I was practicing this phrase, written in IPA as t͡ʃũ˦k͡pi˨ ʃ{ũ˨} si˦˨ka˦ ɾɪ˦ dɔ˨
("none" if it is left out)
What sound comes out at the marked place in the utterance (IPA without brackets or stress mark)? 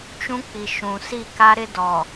ũ˨